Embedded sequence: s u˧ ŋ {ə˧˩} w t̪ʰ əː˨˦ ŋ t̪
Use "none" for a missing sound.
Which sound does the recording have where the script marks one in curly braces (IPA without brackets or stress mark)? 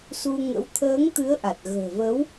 ə̰˧˥